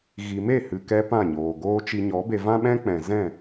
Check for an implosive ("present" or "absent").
present